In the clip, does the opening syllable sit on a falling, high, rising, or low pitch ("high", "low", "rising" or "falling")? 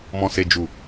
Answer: low